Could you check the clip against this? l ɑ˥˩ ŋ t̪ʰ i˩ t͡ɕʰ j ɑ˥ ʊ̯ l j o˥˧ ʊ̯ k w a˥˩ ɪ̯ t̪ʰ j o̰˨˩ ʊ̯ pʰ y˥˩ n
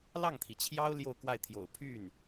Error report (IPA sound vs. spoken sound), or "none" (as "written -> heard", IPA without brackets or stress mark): none